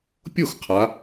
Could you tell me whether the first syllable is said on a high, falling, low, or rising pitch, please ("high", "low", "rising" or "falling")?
falling